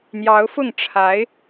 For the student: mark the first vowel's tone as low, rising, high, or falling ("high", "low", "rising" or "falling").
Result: rising